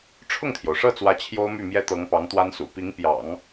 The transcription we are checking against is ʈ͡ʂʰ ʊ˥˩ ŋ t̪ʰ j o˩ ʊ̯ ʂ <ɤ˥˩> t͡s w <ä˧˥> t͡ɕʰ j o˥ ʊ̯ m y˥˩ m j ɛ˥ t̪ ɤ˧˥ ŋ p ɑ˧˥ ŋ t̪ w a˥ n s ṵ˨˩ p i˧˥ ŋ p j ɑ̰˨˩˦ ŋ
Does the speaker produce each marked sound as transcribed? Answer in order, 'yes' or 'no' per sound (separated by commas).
yes, yes